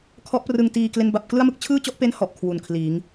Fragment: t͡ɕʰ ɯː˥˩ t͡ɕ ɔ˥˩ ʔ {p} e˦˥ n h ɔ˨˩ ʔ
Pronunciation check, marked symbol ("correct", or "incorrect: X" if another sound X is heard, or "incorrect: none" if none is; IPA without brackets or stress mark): correct